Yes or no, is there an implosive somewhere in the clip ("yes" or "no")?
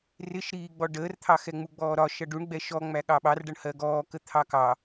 yes